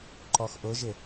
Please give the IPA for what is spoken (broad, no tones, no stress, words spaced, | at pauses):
ǃɔxʔʊʒɪ